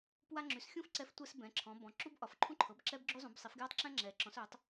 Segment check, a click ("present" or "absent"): present